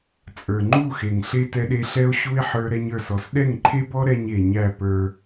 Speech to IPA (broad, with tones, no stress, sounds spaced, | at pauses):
t͡sʼ ə˞˨ ŋ͡ǃ u˦˨ x e˨ ŋ ɬ e˦ t ɛ˦ ɗ e˦ ɬ ɛ˦ o̯ ɕ u˦ e̯ ħ ə˞˦ ɾ ɛ˦ ɲ ə˞˦˨ s ɔ˨ s ɗ ɛ˦˨ ŋ ǃʰ e˦ b ɔ˦ ɾ ɛ˦ ɲ e˨ ɲ æ˦˨ p ə˞˦